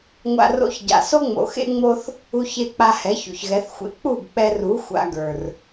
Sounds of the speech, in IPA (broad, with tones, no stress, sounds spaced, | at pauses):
ŋʷ a̰˧ r o̰˧ ç ɟ a̰˨ s o˦ ŋ͡m o̰˨ x ḛ˦ ŋ͡m o˦ θ | u˧ ç e˧ k͡p a˧ h ɛ˨˦ ç o̰˨ ç ɣ ɛ˨˦ θ xʷ ḛ˧ k͡p u˦˨ ɡ k͡p ɛ˧ r u˨˦ xʷ a̰˧ ɡ ə˞˨ r